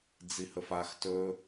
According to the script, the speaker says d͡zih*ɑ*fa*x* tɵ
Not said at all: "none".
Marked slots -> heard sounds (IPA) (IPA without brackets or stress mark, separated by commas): ə, x